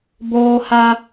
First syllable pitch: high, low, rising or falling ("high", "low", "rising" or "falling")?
high